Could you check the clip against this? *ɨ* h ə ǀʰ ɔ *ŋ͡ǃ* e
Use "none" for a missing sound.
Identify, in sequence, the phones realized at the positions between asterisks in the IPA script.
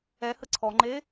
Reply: ɛ, ŋ͡ǃ

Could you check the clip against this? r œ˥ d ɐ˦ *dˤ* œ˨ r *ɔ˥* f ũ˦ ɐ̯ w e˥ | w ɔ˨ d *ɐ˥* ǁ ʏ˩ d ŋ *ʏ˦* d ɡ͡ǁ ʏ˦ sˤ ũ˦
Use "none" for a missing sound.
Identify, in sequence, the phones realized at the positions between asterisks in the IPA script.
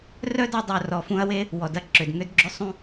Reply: dˤ, ɔ˨, ɐ˥, ʏ˦

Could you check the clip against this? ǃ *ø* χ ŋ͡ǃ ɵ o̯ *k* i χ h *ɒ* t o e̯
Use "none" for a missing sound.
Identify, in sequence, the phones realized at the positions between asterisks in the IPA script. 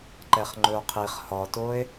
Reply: ɛ, qʰ, ɒ

